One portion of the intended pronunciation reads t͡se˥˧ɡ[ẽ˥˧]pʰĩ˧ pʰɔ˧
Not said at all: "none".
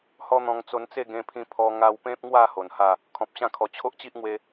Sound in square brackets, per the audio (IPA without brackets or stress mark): ẽ˧